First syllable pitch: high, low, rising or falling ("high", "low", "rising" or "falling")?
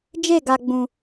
falling